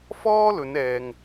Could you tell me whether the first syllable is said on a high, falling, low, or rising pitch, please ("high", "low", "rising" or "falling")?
high